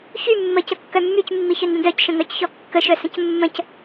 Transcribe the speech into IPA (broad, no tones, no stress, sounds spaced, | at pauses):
ç y mː ə c ə kː œ mː y c mː i ç œ n d ə̃ d œ c ʃ ə̃ ŋ œ c ç ɔ kː ə ʃ œ s ə̃ c mː ə̃ c